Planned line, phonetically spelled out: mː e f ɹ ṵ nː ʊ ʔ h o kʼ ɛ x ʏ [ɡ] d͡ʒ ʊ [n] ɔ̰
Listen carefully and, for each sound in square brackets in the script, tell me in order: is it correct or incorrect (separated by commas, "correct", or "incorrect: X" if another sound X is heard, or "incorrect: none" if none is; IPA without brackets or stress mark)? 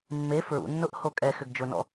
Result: correct, correct